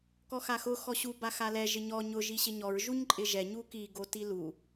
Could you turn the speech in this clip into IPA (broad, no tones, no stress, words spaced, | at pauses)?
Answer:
kɔxaxʊ xɔɕu baxalɛ ʒɪɲɔ ɲʊ ʒiɕɪɲɔɹ ʒuɲǃʼɪʒɛ ɲuki ɡotilu